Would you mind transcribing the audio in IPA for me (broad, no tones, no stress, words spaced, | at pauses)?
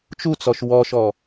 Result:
t͡ʃut͡sɔʃ wɔʃɔ